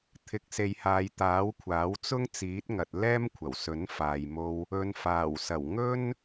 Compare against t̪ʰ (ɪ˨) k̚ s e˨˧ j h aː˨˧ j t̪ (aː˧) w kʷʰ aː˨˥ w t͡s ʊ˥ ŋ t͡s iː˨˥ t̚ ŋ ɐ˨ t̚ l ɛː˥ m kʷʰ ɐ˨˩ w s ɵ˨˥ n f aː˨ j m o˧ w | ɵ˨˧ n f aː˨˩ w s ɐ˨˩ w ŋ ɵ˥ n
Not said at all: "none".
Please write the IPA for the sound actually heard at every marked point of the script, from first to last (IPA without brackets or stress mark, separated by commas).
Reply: ɪ˨, aː˨˥